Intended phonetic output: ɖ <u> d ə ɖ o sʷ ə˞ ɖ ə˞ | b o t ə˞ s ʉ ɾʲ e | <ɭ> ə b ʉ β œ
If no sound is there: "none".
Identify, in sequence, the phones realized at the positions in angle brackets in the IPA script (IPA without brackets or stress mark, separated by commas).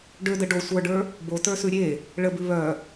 ø, ɭ